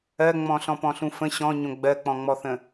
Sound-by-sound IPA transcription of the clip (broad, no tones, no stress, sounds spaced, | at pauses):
ɜ ŋ͡m ɔ̃ ɬ ɔ̃ p ɔ̃ ɬ ũ f ə̃ ɕ ɔ̃ ɲ õ ɡ͡b ɜ k͡p ɔ̃ ŋ͡m ɔ θ ə̃